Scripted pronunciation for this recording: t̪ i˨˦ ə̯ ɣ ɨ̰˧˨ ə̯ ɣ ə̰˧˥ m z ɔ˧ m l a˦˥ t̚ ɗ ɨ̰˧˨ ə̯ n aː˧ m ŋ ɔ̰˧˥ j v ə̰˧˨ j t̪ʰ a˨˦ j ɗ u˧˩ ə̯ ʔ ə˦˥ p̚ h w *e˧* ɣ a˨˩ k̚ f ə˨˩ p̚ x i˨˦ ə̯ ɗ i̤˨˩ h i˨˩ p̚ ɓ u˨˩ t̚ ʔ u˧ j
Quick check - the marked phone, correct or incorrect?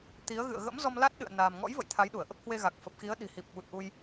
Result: correct